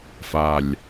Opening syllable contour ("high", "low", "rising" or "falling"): low